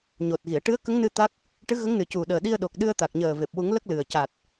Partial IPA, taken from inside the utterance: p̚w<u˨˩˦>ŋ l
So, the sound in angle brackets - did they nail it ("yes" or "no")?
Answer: yes